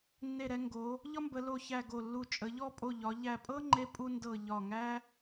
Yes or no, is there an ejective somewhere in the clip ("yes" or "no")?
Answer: yes